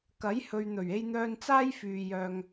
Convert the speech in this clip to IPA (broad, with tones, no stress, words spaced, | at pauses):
kɐ˨˥jhɵ˨ɥn̪ɵ˨˩ɥ e˧jn̪œː˧nt͡saː˥j fyː˨ jœː˨ŋ